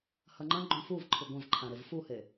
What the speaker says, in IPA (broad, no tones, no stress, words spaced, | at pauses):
hɐŋ͡ǃɐ̃ ɡ͡ǃõfuvǃʰɨ ɡʷɐ̃vǃʰãɾev fuhe